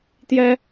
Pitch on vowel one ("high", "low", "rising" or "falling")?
high